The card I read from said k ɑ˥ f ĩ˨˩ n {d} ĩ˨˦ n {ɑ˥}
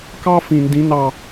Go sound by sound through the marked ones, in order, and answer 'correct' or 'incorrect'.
correct, incorrect: ɑ˦˨

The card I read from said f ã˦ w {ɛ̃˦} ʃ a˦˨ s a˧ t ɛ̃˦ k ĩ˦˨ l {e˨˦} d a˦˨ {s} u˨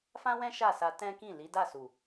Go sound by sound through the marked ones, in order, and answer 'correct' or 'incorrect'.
correct, incorrect: i˨˦, correct

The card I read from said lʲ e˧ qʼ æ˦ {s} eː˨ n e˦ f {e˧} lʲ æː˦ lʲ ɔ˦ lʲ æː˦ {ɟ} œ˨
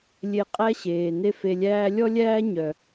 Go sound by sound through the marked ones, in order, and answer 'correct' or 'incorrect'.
incorrect: ɕ, correct, incorrect: ɲ

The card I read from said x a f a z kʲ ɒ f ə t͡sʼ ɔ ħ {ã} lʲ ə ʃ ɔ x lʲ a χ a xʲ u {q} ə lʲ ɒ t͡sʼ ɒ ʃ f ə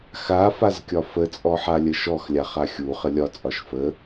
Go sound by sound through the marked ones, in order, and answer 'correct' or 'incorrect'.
incorrect: a, incorrect: χ

